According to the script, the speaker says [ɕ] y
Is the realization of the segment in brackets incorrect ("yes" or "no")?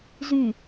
yes